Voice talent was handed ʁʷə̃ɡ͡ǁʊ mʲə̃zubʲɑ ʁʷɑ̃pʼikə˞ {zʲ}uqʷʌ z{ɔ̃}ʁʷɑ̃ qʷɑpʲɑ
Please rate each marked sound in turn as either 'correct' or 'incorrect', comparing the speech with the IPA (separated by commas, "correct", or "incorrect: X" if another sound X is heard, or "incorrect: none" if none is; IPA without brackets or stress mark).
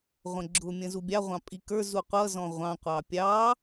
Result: incorrect: z, correct